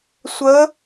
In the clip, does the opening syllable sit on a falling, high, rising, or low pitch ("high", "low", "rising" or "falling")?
rising